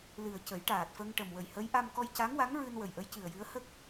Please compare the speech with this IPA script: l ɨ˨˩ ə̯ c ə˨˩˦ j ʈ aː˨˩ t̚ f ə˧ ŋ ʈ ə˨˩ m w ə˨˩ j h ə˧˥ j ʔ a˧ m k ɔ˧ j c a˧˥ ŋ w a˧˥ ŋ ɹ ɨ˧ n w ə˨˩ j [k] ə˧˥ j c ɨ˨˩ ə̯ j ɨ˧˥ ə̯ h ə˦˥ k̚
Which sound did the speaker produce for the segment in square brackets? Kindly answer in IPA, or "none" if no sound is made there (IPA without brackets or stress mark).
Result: ʔ